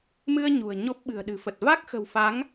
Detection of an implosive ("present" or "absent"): present